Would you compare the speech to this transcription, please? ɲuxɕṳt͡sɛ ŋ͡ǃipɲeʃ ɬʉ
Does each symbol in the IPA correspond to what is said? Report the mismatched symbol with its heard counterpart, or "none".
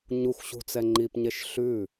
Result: none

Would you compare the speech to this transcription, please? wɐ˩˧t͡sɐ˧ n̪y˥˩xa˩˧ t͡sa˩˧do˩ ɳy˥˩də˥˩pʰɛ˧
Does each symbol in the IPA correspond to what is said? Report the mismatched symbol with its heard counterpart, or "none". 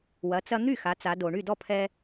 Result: ə˥˩ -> ɔ˥˩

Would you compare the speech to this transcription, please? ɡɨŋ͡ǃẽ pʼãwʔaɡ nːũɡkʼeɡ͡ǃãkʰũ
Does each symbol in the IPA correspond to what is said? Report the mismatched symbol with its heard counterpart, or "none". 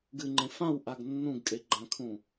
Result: pʼ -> f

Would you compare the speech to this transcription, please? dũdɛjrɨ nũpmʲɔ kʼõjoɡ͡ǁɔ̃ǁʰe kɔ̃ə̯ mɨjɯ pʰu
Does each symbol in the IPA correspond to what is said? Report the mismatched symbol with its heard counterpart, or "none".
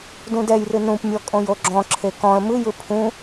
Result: u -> ũ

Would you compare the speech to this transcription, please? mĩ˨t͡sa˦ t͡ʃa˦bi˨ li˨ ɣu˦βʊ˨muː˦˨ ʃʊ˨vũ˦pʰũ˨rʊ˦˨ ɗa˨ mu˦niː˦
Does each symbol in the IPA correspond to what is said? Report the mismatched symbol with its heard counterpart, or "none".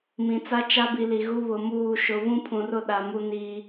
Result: none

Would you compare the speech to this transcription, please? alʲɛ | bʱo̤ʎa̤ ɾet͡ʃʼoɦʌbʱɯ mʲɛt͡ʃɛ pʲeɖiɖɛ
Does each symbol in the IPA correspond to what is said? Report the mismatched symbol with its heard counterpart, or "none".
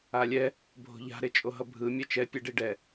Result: none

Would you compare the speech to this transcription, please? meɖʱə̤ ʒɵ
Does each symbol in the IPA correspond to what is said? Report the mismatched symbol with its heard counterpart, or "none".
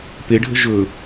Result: m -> p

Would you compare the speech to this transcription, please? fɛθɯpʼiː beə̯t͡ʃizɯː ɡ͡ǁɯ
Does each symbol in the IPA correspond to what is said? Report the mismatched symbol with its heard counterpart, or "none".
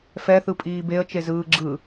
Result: i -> e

